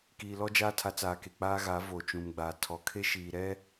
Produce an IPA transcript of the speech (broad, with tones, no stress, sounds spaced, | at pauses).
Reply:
k iː˨ l ɔ˦ d͡ʒ aː˦ tʰ a˨˦ t͡s aː˨ k e˨ k͡p aː˦ ɣ a˨˦ v oː˨ t͡ʃ ũ˨ m ɡ͡b aː˨ tʰ ɔ˨ kʰ e˦ ʃ iː˨ ɾ ɛ˦